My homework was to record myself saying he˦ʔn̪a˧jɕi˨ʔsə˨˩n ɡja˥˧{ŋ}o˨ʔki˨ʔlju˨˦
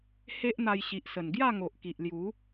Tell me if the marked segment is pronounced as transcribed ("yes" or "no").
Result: yes